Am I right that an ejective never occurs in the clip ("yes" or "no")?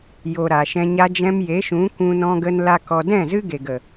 yes